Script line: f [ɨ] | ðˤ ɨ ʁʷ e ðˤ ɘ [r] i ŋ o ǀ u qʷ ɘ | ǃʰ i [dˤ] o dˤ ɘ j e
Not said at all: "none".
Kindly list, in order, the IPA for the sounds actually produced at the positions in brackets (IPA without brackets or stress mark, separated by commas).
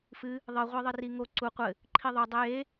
ɨ, r, ðˤ